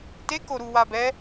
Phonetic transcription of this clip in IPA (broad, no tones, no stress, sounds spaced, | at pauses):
t e k o ɾ u w a b ɛ